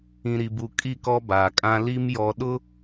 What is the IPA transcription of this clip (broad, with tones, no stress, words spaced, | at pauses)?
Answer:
ĩ˨ɾi˨bu˨ kʼi˦˨kɔ˦baː˨kʼã˦ li˦m jɔ˨ɗʊ˦